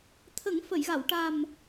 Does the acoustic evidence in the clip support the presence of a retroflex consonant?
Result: yes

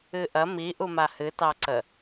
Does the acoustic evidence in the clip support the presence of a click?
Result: yes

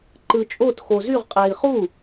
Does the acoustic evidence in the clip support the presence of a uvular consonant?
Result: yes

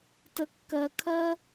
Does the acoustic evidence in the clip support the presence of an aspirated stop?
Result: yes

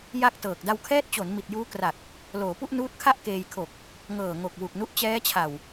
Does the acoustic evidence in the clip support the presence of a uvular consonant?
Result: no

